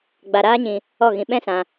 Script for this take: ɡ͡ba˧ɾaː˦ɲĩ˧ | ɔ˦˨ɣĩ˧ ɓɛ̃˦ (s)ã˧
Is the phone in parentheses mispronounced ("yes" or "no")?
no